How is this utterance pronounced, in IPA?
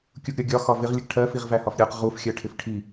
kʲ u ɡ ɾʲ ɒ ɡʲ ɒ x ɒ v ɪ ʁ lʲ ə ɡ ʈʰ ɜ f i ʁ v æ h ɒ f ɾʲ ɜ q ʁ u f xʲ ɜ ʈʰ ɪ f ʈʰ i

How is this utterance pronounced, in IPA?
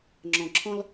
ŋ͡ǁ ɔ̃˨ ǁʰ ɔ̃˦ l

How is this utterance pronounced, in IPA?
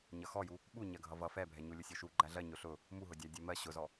ɲ ʌ x ɔ j u | ɓ u ɲ ɜ ɡʱ ʌ v ʌ f ɛ bʱ ɛ ɲ u lʲ ʊ sʲ ɔ ʃ u ɡ͡ǃ æ ɮ ɜ ɲ ʊ ɬ ʊ | m u ɦ ʊ dʲ æ dʲ ɜ m ɜ ɕ ʊ z ɔ

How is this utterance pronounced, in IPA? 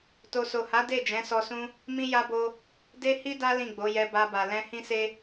t o˨ s o˨ h a˨˦ d e˦˨ d͡ʒ ɛ̃˨˦ s ɔ˧ s ũ˦ | m ĩ˦ j a˦ b o˦ | d e˦ h i˦ d a˦ l ĩ˦˨ ɡ͡b o˨˦ j ɛ˧ b a˧ b a˨ l ɛ̃˧ h ĩ˦ s e˦

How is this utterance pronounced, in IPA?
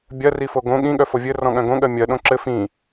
bʲ ɜ r i f o ɡ õ ɠ ĩ ɠ œ f o vʲ ɘ r ɔ̃ ɠ œ̃ ɡ õ ɠ ɜ mʲ ɜ ɗ õ ǁ ɘ f ĩ

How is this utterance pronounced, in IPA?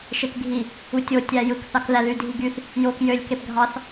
ʃ e k ɡʱ i | u tʲ o tʲ æ j ɯ k θ ɑ k ð æ ð y dʱ i ɡ y θ | j o k j ø lʲ k e p ɡʱ ɑ θ

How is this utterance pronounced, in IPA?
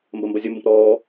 m b ɐ m b ɐ zʲ ɐ m b ə̃ p ɾ ɔː

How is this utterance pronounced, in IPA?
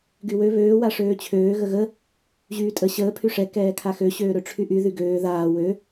ɡ y w ø β øː w a ʂ øː t͡ɕʰ øː ɣ ə ɣ ə | ʑ yː tʼ ə ɕ əː pʰ y ʂ ɛ k ɛː kʰ a x ø ɕ øː ɾ ø ʈ͡ʂʰ y ʔ y ð y ɡ øː ð aː w ø

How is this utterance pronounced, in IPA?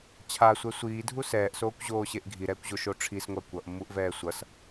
t͡ɕʰ a sʷ ɛ sʷ iː dʱ u s ɛː ʔ s oː kʷ ʑ oː ɕ e ʔ ɡʱ i ɾ ɛː kʷ ʑ o ʃ o ʈ͡ʂʰ i s ŋʷ a kʷ ʌ ʔ mː u ʔ v ɛː sʷ ʌ s

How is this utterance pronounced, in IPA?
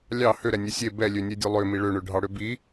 lʲ ɑ h ø ɾ ɛ nʲ e sʲ e b ɛ lʲ ø nʲ e dʲ ø lˠ ø m i ɭ ø ɳ ø ɖʱ ɑ ɽ ø b i

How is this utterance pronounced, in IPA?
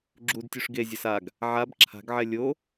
ɡ͡ǁ u d tʲ u ʂ ɡ e zʲ ʌ s a ɡ | ʕ a b ǁʰ a̤ ɡ ʕ ɛ lʲ o

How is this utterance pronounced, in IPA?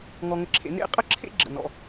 ŋ ɔ˥ ŋ ə˥ ǁʰ ḛ˥ n ḛ˥˧ qʼ ə˥ ǁʰ ḛ˥ ɡ͡ǁ ə̰˥˧ n ɔ̰˥

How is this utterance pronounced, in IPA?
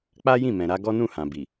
k͡p a˦ j ĩ˦˨ m ɛ̃˨ ɾ a˧ ɡ ɔ˦ n ũ˦˨ h ã˨ b i˨

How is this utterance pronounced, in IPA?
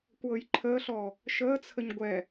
kʷ ɤː j ǃʰ əː ɬ ɔː | ʃ əː t͡sʰ ə ɲ ɡʷ ɛ

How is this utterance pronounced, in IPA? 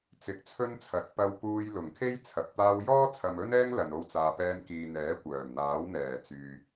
t͡s ɪ˨˥ k̚ t͡sʰ ɵ˥ n t͡sʰ ɐ˨˥ t̚ p ɐ˧ w p uː˧ j l ʊ˨˩ ŋ kʰ e˥ j t͡sʰ ɐ˨ p̚ t̪ aː˧ w j ɔː˥ t͡sʰ ɐ˨ m ɵ˥ n ɛː˥ ŋ l ɐ˨ n o˧ w t͡s aː˨ p ɛː˧ n k iː˨ n̪ ɛː˨˥ kʷ œː˨˩ m n̪ aː˨˥ w n̪ ɛː˨˩ t͡s yː˨

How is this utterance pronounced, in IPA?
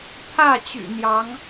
t̪ʰ ä˥˩ t͡ɕ y̰˨˩ n̪ j ɑ˧˥ ŋ

